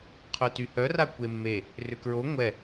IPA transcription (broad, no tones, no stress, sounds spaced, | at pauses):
qʰ ʏ t y h œ r a kʷ e mː e | r ʏ k ɹ o ŋʷ ɛ